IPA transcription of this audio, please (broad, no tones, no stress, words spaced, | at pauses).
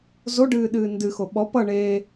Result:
zoɖɨːɗɨː ndɨxo ɓɔ pʌ ɳeː